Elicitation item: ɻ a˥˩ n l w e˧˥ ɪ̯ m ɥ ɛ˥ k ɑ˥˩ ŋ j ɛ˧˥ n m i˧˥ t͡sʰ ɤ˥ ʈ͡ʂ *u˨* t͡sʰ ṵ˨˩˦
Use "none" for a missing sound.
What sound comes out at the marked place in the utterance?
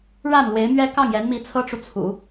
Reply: u˨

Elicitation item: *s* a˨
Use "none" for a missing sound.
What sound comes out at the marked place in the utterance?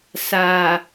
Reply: s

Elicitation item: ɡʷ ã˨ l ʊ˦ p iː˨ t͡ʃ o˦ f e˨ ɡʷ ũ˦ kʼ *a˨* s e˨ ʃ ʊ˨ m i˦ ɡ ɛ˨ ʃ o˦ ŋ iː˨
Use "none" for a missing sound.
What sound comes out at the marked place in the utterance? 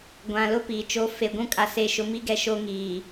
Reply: a˨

